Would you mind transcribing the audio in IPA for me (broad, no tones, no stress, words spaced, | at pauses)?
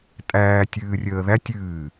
tʼæː tʲɨːrʲəːðætʲ ɨː